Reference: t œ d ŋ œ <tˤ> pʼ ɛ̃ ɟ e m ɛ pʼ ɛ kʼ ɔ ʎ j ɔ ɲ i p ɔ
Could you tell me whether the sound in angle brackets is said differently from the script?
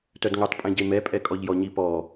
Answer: no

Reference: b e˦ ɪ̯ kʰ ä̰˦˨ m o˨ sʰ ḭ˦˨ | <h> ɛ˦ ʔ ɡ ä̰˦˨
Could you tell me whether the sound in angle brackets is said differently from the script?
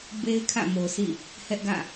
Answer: no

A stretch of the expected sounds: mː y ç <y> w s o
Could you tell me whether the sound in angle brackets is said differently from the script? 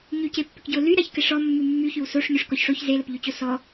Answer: no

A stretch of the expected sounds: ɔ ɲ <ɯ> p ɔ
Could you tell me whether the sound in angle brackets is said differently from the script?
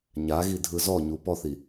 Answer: yes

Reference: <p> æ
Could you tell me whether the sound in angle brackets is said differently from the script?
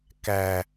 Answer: yes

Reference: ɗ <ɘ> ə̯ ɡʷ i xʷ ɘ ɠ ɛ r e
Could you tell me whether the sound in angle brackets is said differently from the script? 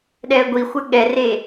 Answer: yes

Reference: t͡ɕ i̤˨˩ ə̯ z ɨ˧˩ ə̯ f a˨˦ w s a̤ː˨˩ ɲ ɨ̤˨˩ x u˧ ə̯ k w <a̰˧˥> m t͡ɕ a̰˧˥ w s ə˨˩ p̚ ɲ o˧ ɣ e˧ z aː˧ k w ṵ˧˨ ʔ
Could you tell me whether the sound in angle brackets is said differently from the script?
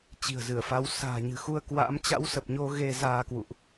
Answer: no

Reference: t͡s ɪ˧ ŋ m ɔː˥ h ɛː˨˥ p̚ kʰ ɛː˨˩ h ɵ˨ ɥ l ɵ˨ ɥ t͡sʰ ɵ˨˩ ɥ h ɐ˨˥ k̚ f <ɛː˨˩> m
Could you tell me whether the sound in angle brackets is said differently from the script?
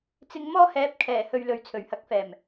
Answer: no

